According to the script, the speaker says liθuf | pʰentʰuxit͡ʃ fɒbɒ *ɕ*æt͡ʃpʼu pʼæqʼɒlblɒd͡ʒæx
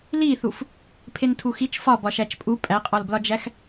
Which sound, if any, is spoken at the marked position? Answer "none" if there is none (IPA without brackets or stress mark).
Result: ʃ